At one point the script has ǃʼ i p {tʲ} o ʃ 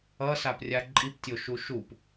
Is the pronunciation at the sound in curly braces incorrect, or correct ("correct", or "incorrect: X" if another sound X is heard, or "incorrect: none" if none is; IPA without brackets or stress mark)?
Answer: correct